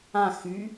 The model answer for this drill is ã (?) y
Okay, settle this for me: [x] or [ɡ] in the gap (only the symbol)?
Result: x